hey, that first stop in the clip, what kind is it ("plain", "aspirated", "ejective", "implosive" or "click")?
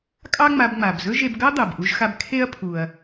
ejective